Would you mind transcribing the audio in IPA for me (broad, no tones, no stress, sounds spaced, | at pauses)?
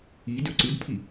i d ø ǀ ɯ d pʰ i